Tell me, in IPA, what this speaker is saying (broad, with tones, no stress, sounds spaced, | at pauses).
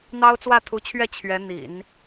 n̪ ɑ˥ ʊ̯ t͡s w ä˥˩ t̪ʰ u˧˥ t͡ɕʰ ɥ ɛ˥˩ t͡ɕʰ ɥ ɛ˧˥ n̪ ḭ˨˩˦ n